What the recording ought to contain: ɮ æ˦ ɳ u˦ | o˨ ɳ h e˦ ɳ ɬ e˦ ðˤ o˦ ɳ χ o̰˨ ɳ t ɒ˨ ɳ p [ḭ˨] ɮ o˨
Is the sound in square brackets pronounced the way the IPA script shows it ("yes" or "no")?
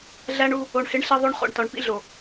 no